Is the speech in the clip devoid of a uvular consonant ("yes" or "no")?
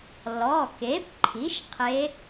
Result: no